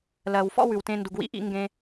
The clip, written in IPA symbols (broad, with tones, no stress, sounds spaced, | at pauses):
l ɜ˨ w f ɔ̰˦ w ʉ˨ w t ẽ˧ n d u˨ ɡ w ḭ˧ ʔ ḭ˧ ŋ ɡ ẽ˧